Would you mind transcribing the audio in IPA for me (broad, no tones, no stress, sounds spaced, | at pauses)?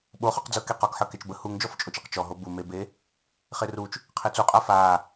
ɓ o χ ɔ q d͡z ɤ k e q ɔ k ħ ɤ k e t͡ʃ b ə h u ŋ d͡ʒ ɔ f t͡ʃʼ o t͡ʃ e q t͡ʃ ɔ ɦ o b u m e b e | χ e r u t͡ʃ | qʰ e t͡s u qʼ a f a